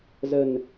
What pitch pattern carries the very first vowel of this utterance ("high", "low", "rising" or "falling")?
low